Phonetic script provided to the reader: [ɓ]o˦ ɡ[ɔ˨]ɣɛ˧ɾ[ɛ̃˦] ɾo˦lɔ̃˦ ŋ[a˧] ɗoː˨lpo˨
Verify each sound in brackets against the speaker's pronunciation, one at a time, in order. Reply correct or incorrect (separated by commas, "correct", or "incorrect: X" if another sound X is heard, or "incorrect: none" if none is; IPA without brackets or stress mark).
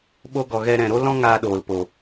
correct, correct, incorrect: ɛ̃˨, incorrect: aː˧